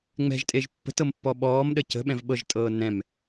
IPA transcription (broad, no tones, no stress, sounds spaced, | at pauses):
ŋ͡m ɛ̤ ʒ tʼ e ʒ pː ə̤ t ɤ m pː ɔ ɓ ɔː m ɗ ə c ə̤ ɓ ɛ̃ v ɓ ɤ ʒ tʼ ɤː n ɛ̃ m